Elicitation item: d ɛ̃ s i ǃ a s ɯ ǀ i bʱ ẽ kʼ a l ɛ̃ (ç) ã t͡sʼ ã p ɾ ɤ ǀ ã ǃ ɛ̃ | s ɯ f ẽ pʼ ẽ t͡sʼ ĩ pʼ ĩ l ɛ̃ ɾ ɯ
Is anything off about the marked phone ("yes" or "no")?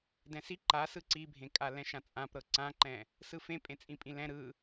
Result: yes